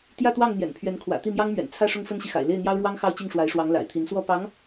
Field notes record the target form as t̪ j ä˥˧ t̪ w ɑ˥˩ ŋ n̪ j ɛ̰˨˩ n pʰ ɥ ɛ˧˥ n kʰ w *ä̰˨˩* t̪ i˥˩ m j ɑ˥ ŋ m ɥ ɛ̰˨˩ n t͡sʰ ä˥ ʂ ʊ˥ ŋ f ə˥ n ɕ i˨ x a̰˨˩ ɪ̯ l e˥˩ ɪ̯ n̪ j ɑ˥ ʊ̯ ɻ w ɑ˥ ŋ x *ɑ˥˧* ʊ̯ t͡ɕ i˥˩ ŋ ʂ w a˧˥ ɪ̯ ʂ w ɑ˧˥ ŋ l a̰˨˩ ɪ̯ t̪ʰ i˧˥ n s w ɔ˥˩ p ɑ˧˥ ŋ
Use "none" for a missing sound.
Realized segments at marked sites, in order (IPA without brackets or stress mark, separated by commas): ä̰˨˩, ɑ˥˧